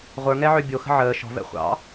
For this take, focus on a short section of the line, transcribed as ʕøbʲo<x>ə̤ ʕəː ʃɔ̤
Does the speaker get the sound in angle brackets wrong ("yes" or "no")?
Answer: no